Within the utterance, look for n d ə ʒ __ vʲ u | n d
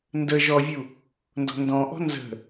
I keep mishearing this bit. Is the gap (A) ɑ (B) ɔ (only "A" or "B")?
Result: B